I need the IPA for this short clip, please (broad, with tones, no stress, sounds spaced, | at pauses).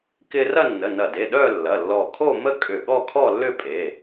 k ɪ˧ r ɐ˥˧ nː ə˩˧˩ n ɐ˧˩ d e˩˧˩ ɗ œ˥˧ lː ɐ˩˧˩ lː ɔ˧˩ kʰ o˥˧ m ə˥˧ kʼ ʏ˧˩ ɠ ɔ˥˧ kʰ ɔ˥˧ lː ʏ˥˧ pʼ e˩˧˩